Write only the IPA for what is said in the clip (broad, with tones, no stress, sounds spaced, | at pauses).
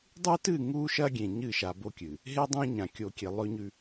dˤ ʉ˦ t ɨ˦˨ ŋ u˦ ʃ ɐ˦ ɡʲ ẽ˨ ɲ ɨ˦˨ ʃ a˨ b o˦ kʲ ɨ˨ | ɦ e˦ dˤ ẽ˦ ɲ ã˨ kʲ o˨ kʲ e˨ lˠ ɵ˦ ɲ ʉ˦